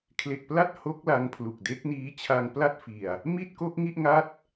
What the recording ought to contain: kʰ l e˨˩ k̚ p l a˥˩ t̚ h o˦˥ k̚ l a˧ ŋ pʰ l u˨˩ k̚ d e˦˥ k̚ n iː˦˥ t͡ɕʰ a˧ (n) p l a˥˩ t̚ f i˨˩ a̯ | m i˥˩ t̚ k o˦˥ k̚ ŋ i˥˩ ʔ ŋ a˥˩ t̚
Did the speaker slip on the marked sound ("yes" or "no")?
yes